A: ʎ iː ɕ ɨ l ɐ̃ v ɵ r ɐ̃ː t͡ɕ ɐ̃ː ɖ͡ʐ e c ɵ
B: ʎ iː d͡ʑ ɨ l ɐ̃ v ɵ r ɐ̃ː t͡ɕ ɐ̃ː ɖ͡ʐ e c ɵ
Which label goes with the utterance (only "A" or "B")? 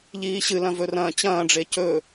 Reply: A